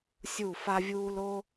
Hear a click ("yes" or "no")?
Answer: no